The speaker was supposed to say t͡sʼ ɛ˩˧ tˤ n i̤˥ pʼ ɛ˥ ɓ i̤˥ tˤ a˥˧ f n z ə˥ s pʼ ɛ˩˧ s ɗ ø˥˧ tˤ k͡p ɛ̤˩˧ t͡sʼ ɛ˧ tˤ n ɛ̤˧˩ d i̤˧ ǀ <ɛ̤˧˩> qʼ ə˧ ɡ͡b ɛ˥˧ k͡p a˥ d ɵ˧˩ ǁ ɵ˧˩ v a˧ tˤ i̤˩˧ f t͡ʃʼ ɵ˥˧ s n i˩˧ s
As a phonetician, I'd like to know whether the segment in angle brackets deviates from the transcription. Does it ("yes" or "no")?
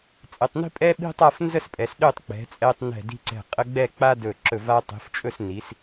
no